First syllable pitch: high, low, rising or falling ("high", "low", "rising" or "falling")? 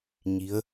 rising